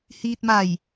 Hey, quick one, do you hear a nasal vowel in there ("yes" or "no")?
no